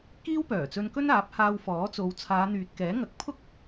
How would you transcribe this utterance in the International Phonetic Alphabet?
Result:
k iː˥ w p œː˨˩ t͡s ɵ˧ n k ɵ˥ n aː˨˥ p̚ h aː˧ w f ɔː˨˥ t͡s o˨˧ w t͡sʰ aː˨˧ n̪ yː˨ t̚ k ɛː˨˥ ŋ ɐ˨˥ k̚ pʰ ʊ˥ k̚

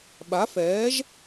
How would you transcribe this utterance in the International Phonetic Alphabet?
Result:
ɓ a˩˥ f ɛː˩˥ ʒ

